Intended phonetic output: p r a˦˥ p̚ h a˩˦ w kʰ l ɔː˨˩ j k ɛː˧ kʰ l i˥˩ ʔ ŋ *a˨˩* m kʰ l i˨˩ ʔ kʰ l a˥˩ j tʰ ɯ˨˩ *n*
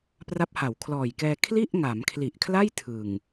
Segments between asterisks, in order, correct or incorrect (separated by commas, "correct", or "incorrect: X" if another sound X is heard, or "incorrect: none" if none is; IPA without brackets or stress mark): incorrect: a˩˦, incorrect: ŋ